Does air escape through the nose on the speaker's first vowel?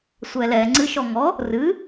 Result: no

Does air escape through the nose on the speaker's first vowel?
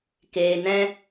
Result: no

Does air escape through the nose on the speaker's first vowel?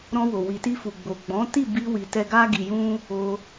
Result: yes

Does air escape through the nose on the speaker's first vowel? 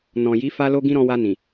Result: yes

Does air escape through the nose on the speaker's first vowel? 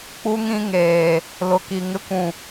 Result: no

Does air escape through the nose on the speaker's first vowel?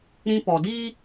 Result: yes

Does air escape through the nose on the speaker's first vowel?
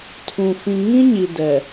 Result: yes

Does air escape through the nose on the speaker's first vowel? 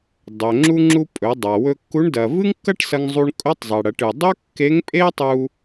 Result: no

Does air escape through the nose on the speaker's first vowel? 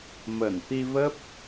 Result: no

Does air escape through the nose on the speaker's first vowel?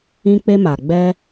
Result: yes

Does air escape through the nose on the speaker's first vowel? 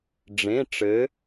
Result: yes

